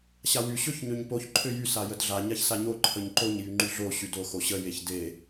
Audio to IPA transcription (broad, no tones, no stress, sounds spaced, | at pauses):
ɕ a w y ɕ ø ç ɲ ø ɲ p o ç ǃʰ ø j y s a j ə d ɮ a ɲ a ç s a ɲ o ǃʰ ə ɲ ǃ o ɲ j y ŋ͡ǃ y ɮ o ɕ y d o x o ɕ ə j e ç d e